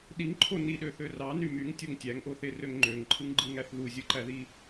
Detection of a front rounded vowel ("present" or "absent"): present